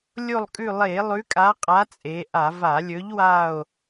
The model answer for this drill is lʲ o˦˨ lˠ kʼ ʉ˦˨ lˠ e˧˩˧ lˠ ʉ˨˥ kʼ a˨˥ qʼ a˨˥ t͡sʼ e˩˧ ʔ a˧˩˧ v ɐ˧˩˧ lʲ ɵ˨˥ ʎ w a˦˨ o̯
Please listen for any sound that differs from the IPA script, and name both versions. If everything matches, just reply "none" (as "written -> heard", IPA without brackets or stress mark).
ɐ˧˩˧ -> a˧˩˧